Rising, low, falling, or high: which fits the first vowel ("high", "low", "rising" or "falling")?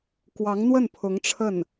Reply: rising